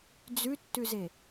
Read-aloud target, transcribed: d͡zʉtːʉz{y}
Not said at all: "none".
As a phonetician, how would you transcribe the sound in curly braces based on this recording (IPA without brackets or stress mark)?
e